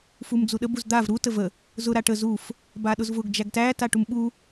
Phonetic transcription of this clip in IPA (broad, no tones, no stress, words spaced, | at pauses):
fumd͡zuɗə buzd̪av ɾu təvə | zʊ ɾaʈə zuf | baɗʊzvʊɡ d͡ʒæɡtæ taʈumɓu